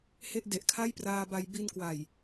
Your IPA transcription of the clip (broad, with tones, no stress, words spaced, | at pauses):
he˥˩ʔ de˨˩ʔkʰa˥˩jpraː˧ba˧j bi˧nkwa˨˩j